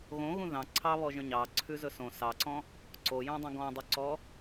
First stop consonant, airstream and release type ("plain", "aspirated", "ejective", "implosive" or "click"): click